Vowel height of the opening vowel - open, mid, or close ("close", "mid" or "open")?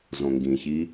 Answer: mid